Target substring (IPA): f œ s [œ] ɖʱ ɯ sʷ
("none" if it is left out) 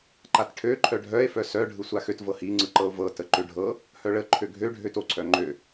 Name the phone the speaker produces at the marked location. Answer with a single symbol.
œ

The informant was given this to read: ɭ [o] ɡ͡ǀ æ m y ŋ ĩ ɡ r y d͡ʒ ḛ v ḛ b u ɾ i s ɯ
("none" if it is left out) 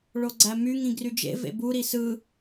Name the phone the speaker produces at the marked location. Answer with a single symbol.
o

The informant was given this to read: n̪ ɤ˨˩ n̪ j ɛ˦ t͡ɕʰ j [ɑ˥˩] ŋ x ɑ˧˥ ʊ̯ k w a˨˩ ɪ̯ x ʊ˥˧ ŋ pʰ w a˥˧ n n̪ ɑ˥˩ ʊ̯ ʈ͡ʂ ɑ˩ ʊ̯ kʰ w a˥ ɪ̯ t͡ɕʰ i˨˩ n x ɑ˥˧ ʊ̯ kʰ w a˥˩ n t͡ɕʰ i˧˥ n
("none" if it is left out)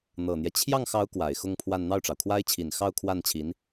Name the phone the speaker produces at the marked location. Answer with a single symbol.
ɑ˥˩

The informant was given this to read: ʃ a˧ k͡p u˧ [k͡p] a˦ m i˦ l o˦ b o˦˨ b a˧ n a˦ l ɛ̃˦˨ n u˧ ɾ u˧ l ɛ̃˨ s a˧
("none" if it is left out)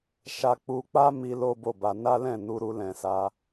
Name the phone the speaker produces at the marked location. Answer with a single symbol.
k͡p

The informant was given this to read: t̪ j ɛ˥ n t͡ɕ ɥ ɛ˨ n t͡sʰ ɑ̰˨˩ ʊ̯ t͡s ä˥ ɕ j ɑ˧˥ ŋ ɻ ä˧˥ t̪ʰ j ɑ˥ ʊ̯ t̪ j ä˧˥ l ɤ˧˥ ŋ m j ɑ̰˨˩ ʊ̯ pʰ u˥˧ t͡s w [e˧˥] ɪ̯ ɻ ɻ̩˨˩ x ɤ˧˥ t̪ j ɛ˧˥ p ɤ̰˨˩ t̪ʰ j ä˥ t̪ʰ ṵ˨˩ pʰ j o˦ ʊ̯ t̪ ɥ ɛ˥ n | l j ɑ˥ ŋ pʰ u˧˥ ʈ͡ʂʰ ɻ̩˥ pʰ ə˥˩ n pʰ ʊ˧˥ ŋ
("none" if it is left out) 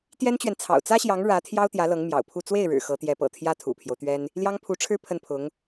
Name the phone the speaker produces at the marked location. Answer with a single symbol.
e˥˩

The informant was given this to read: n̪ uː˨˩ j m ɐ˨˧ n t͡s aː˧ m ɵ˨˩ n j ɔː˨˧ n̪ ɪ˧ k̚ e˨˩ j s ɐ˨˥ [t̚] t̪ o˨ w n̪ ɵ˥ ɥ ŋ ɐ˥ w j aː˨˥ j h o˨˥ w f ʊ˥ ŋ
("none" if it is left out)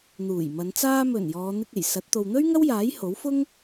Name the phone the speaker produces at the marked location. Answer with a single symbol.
t̚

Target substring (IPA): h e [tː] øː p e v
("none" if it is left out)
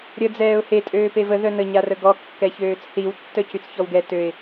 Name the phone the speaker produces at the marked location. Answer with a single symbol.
tʼ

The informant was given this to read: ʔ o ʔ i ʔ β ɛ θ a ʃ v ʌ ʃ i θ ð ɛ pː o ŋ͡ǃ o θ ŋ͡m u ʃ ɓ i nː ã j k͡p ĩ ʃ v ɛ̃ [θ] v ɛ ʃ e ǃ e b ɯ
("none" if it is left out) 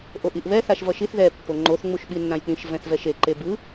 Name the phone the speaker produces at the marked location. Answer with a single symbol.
θ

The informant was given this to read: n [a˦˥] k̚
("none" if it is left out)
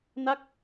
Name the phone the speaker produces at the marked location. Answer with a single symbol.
a˦˥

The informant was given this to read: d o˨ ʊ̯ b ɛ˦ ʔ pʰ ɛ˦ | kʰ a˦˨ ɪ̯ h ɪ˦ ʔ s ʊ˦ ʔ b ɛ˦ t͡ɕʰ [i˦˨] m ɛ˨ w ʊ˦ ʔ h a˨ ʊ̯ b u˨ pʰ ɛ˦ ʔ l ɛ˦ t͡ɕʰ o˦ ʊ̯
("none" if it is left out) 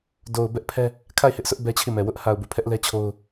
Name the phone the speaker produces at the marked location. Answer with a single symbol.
i˦˨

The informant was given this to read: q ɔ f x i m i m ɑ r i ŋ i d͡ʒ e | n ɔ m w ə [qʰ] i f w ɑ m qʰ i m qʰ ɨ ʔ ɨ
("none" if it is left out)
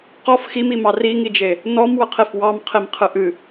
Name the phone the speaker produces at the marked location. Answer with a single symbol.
qʰ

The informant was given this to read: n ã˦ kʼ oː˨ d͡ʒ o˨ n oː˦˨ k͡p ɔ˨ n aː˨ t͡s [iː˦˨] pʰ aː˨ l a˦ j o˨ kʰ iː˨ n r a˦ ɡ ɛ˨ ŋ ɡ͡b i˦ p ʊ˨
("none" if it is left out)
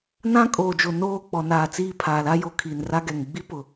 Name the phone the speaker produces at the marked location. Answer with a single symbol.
iː˦˨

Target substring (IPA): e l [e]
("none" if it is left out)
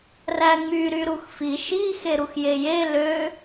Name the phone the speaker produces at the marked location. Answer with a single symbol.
ø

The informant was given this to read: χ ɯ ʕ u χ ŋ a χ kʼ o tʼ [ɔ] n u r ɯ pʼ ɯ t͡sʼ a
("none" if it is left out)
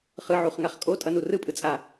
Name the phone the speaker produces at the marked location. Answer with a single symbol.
ʌ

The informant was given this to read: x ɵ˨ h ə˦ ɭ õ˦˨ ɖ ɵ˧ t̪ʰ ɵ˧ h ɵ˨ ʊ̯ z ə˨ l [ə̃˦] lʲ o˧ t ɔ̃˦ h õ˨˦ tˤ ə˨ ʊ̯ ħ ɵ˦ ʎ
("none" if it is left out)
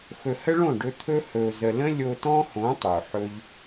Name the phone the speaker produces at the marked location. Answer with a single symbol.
ə̃˦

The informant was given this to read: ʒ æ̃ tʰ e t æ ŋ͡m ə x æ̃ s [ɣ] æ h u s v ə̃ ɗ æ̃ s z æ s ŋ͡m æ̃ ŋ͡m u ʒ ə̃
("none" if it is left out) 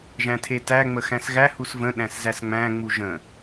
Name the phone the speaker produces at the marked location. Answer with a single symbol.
ɣ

